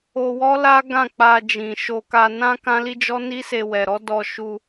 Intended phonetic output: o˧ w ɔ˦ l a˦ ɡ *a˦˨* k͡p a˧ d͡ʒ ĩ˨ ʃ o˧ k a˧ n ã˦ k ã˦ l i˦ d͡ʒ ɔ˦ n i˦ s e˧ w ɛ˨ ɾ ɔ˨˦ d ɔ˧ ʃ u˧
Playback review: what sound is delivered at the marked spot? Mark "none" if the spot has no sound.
ã˦˨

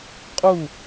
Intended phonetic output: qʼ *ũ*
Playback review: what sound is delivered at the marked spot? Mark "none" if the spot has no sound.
u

